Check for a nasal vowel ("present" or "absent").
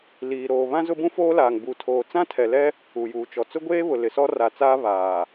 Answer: present